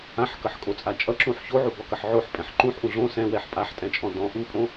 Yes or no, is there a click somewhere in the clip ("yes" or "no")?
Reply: yes